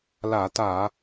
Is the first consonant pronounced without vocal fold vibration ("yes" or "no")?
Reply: no